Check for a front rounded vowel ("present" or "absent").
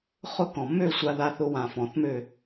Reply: present